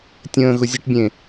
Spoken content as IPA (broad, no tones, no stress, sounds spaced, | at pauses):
tʲ ə̃ː ɣ ʊ zʲ ə ʈ bʲ ẽ